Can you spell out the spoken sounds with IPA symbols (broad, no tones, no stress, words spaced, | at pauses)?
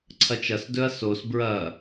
ǀʰɐt͡ʃɐsdɵɐ̯ sos bɹɐ